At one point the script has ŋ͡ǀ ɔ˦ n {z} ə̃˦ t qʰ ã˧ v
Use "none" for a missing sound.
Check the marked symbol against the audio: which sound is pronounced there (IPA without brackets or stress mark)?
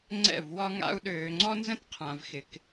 z